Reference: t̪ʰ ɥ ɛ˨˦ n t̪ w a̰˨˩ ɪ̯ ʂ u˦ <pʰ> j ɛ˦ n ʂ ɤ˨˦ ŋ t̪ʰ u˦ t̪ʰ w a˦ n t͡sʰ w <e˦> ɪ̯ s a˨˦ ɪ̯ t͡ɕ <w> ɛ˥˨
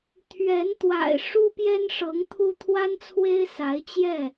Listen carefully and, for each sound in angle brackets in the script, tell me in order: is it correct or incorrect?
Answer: incorrect: p, correct, incorrect: j

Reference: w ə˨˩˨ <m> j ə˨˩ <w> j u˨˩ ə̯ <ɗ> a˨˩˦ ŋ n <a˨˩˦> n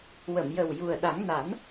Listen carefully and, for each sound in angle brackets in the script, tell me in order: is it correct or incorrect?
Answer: correct, correct, correct, correct

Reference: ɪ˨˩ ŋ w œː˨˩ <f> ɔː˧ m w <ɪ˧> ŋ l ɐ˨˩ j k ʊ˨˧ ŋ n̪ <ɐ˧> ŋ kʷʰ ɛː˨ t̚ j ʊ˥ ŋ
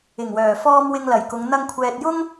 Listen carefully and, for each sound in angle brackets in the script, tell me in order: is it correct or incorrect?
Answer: correct, correct, correct

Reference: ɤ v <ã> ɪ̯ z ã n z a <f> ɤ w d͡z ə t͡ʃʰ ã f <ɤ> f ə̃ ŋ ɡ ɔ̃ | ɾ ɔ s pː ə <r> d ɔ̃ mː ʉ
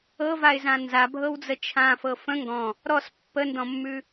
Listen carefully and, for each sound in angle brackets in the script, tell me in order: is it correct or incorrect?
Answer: incorrect: a, incorrect: bʱ, correct, incorrect: n

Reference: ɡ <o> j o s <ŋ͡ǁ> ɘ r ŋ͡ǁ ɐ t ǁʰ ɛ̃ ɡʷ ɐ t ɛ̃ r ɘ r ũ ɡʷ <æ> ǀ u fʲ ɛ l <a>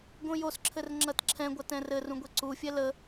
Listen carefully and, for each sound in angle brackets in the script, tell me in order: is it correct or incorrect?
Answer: incorrect: õ, incorrect: ǁʰ, incorrect: ɛ, incorrect: ə

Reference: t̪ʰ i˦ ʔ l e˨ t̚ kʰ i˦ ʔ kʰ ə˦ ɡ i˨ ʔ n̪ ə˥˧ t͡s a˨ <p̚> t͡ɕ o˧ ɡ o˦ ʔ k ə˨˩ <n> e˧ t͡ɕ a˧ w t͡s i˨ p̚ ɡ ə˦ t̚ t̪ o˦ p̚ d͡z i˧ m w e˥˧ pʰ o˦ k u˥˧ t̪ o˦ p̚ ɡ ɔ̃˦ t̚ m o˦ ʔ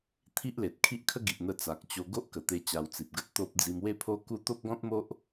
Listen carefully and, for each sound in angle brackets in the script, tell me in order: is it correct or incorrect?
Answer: incorrect: k̚, incorrect: t̪

